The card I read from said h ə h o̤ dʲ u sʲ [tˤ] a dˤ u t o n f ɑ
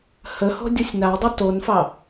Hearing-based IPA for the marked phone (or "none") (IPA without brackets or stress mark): n